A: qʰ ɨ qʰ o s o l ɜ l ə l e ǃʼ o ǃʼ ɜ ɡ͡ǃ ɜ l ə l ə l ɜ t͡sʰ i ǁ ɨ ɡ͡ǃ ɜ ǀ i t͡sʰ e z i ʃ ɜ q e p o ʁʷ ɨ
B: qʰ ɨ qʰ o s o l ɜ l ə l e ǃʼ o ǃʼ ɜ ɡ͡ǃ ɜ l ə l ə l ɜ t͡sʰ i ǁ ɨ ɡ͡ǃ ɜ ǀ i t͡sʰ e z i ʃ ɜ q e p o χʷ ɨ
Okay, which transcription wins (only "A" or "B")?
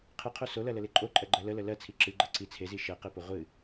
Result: A